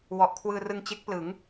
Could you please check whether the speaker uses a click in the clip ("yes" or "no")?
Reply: no